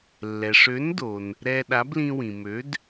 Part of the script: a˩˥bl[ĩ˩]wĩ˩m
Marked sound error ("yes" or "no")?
yes